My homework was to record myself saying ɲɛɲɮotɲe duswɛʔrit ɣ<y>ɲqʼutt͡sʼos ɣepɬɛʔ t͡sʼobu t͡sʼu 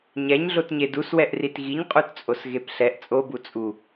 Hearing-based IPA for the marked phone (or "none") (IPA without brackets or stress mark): i